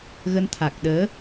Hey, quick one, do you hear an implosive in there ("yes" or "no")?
yes